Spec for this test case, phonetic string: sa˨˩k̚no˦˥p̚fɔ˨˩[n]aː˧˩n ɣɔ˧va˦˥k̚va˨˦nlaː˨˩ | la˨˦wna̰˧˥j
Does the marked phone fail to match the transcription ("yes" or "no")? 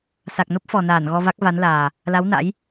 no